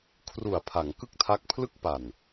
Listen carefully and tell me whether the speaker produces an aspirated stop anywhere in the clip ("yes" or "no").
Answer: yes